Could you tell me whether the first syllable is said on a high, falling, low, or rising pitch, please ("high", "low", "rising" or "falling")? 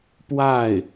falling